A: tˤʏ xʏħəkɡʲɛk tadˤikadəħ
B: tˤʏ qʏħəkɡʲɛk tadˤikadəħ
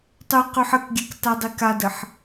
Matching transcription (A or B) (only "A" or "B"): B